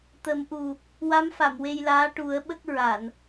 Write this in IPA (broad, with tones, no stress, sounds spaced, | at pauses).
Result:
t̪ ə˨˩˦ m ʔ u˨˩ | w a˧˥ m f a˨˩˨ m w e˧ j l aː˧˥ ʈ u˨˩˦ ə̯ ɓ ə˦˥ k̚ ɹ a˨˩˨ n